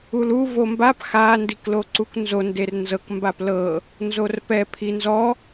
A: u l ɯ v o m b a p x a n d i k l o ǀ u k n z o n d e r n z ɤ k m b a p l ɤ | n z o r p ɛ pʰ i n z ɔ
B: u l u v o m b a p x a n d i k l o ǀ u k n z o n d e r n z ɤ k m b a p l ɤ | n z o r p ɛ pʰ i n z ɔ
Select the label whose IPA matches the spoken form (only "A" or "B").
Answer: B